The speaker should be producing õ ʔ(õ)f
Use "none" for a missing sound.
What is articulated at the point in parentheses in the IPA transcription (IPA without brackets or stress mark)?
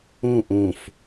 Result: õ